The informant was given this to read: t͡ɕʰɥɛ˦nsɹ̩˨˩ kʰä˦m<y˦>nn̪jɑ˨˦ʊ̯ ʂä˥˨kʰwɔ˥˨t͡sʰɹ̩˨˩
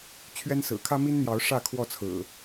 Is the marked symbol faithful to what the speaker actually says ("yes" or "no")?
no